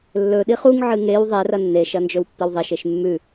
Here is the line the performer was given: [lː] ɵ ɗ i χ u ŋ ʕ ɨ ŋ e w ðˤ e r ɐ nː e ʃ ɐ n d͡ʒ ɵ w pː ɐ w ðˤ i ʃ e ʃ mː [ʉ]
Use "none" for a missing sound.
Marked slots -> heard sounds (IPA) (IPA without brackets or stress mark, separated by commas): lː, ʉ